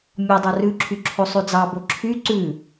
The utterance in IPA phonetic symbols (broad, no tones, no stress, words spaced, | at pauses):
mʲɔdˤa rʉǁʰy ǁʰosˤʉd͡zɑbo ǁʰy ǀʉ